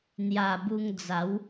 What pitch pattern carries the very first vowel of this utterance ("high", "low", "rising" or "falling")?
low